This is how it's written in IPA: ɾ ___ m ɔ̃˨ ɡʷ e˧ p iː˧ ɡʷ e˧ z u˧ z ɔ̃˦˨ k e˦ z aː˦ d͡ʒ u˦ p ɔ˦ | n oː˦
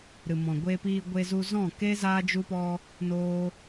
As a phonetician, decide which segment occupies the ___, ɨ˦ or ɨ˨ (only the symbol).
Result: ɨ˨